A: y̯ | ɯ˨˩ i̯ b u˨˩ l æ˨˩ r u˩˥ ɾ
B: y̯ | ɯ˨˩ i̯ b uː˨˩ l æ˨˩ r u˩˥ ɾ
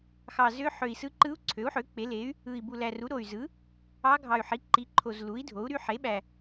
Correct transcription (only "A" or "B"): A